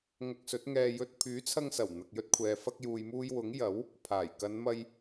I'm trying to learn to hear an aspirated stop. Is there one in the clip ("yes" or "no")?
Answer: yes